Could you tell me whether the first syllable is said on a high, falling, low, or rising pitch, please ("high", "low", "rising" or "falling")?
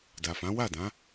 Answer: low